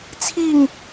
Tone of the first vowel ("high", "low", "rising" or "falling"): falling